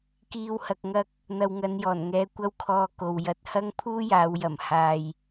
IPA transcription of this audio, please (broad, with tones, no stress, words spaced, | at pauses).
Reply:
kiː˨whɐ˨k̚ŋɐ˧k̚ | n̪ɐ˨wŋɐ˨˧njɔː˨˩nŋɛː˨˧ kʷɐ˥wkʰɔː˧ko˨w jɐ˨t̚ hɐ˥ŋpʰuː˥jaː˨˧wjɐ˨˩m haː˨j